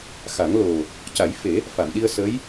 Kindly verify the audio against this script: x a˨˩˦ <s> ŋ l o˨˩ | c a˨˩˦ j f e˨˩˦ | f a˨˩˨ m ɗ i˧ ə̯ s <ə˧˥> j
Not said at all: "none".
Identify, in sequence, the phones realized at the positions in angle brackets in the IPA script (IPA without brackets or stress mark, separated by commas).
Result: none, ə˧˥